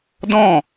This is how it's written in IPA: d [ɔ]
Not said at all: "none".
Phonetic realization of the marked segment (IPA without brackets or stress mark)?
ɔ̃